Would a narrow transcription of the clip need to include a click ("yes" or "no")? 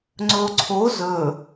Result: yes